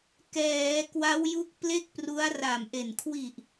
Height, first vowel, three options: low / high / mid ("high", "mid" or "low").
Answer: mid